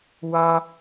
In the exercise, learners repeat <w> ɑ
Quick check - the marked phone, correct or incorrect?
correct